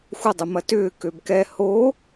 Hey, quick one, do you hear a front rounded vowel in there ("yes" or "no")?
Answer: yes